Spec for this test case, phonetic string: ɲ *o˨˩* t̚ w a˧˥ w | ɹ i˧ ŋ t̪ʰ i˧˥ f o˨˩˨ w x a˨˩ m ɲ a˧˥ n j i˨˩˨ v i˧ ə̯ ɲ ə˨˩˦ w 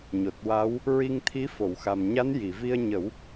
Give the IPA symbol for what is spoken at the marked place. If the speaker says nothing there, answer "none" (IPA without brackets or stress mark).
o˨˩